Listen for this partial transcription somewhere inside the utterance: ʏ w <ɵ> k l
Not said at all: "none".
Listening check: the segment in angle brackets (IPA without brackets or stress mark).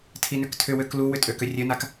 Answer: ø